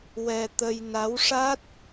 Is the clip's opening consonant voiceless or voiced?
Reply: voiced